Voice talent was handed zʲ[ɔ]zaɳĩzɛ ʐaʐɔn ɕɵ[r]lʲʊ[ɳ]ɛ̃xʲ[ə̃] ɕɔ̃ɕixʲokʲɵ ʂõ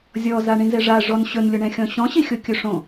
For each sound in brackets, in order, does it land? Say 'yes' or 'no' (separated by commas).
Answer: yes, no, yes, no